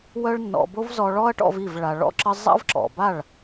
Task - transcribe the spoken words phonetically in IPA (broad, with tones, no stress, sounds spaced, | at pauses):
w œ˦ ɭ nː ɔ̰˧ b o˦ v z ɔ˧ ɭ ɔ˦ ɐ̯ ʈ ɔ̰˧ v i˦˨ v ɭ a˨ ɭ ɔ̰˦ ǁ ə˦ zˤ a̰˦ v ǁ ɔ̰˨ b a˦˨ ɭ